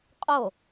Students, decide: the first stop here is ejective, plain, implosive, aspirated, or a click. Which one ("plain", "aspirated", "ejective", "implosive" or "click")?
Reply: ejective